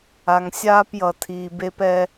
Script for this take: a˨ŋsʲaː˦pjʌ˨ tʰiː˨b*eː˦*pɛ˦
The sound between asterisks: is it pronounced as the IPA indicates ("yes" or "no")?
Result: no